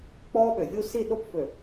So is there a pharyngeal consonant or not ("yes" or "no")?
no